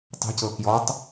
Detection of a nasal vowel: absent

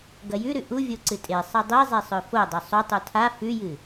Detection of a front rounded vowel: absent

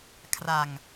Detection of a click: absent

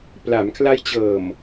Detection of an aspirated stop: present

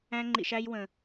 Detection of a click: present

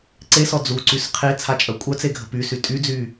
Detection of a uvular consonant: present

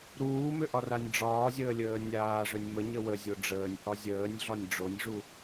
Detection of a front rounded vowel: present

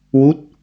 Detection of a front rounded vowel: absent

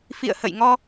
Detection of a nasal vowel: absent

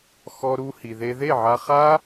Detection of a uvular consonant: present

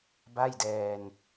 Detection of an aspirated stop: absent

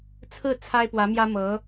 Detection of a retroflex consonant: absent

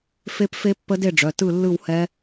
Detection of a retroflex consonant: present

